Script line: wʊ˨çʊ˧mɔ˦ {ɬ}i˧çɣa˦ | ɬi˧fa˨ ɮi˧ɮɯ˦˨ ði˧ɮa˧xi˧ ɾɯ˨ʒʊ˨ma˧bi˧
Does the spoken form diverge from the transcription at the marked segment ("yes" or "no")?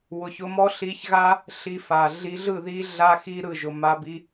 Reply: no